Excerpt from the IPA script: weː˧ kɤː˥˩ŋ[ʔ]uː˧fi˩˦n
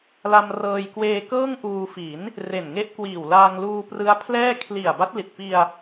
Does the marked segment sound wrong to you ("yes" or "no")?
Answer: no